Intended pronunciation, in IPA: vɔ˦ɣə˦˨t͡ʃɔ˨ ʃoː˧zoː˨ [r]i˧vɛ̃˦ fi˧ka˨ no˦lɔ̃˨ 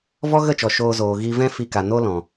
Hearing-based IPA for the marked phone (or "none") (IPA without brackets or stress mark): ɣ